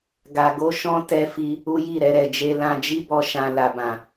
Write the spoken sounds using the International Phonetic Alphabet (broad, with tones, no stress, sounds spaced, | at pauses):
ɡ a˧ ɡ o˦ ʃ ɔ̃˦ t ɛ˦ f i˦ | u˦ j i˦˨ ɾ ɛ˧ ɾ ɛ˨ d͡ʒ e˧ l ã˧ d͡ʒ i˦ b ɔ˧ ʃ ã˧ l a˨ b ã˨